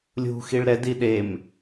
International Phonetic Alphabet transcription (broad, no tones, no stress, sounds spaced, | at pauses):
lʲ ṳ x i ɭ ɾ ɛ d i ɗ e m